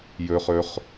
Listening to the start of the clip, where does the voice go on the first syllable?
low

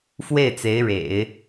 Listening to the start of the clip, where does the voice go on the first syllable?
falling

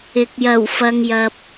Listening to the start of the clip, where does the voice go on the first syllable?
rising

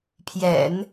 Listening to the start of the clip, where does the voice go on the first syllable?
low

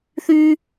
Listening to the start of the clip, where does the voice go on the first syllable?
high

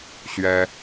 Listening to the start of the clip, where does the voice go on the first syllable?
high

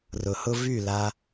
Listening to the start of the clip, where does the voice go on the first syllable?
low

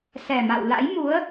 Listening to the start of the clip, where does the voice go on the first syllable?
low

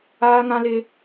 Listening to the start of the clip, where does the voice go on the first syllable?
high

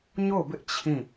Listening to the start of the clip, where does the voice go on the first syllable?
falling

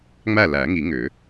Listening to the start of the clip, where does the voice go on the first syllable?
falling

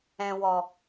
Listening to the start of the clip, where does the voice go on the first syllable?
low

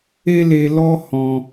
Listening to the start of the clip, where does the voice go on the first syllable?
high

